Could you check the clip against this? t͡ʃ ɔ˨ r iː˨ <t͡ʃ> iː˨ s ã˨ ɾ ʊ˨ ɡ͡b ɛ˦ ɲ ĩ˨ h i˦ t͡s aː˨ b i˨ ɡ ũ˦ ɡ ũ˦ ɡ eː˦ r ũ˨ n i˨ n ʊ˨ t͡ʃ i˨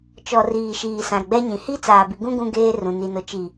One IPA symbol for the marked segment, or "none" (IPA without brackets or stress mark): ʃ